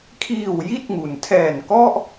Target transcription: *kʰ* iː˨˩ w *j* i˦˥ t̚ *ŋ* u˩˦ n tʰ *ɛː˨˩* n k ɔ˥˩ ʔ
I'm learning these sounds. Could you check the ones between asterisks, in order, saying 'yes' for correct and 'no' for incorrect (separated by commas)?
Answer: yes, yes, yes, yes